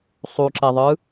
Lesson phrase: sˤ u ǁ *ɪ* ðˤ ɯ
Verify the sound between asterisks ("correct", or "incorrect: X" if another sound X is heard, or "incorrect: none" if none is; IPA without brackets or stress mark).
incorrect: ɛ